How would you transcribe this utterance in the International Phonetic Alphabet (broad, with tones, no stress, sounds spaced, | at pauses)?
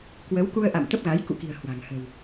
k w ə˨˦ w k u˧ ə̯ ʔ a̰˧˨ m t̪ ə˦˥ p̚ ɣ a˨˦ j k ṵ˧˨ k i̤˨˩ ə̯ h w a̤˨˩ ŋ h ə̤˨˩ w